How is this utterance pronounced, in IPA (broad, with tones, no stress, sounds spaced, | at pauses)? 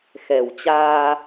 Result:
x ɛ˨˩ w t͡ɕ aː˧